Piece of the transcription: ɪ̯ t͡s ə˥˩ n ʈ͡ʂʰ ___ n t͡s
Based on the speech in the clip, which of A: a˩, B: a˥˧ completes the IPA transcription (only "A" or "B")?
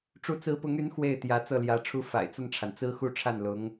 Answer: A